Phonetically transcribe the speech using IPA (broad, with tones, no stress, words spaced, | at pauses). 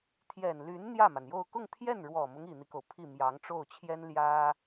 t̪ʰjɛ˨˩n ly˧˥n n̪jä˥˩ma˩njo˥˧ʊ̯ kʊ˥˧ŋt̪ʰjɛ˥˩n ɻwɔ˨˩mʊ˦ŋ i˨˩n̪i˦ko˩ʊ̯ pʰi˥˩ mjɑ˧˥ŋʈ͡ʂo˥˩ʊ̯t͡ɕʰjɛ˥n ljä˥